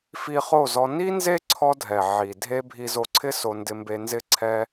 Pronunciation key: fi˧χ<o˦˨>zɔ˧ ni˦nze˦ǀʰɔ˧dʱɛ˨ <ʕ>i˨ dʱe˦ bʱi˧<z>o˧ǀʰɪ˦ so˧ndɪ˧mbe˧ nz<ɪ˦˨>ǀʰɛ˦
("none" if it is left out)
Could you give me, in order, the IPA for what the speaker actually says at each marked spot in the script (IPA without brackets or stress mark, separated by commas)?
o˦˨, ʕ, z, ɪ˦